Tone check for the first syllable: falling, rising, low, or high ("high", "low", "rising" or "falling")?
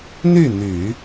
falling